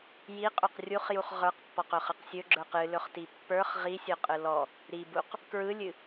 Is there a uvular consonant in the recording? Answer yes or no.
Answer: yes